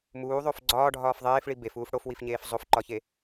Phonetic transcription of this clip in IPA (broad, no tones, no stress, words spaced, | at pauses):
muːðˤof ɡ͡ǀɒːɖʱɒːf ðˤeːfɭi befuːf ɽofwifɲeːf zˤofǃɒçe